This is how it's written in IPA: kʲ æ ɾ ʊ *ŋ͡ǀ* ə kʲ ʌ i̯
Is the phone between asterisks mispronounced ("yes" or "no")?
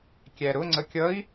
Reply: no